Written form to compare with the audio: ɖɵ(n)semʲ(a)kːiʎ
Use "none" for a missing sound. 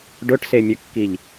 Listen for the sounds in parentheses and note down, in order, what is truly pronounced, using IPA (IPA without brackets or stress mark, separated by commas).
ʈ, ə